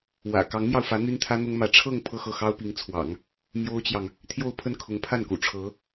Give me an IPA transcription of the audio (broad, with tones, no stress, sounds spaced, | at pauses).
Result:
w ä̰˨˩ k ɑ˧˥ ŋ m j ɑ˧ ʊ̯ f ä˧˥ n̪ y˥ n t̪ʰ ä˥ n̪ ʊ˥ ŋ m ä˧˥ ʈ͡ʂʰ ɤ˥˧ ŋ pʰ ɤ˥˧ x ɤ˥˩ x ɑ˥ ʊ̯ p i˧˥ ŋ t͡sʰ w ɑ̰˨˩˦ ŋ | m j o˥ ʊ̯ t͡ɕ j ɑ˨ ŋ | t̪ʰ j o˥˧ ʊ̯ pʰ ə˥˩ n kʰ ʊ˧˥ ŋ pʰ a˥˩ n k ṵ˨˩ ʈ͡ʂʰ ɤ˧˥